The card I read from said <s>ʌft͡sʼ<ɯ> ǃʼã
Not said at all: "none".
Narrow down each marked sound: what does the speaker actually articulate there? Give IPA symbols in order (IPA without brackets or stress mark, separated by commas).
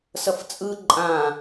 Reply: s, ɯ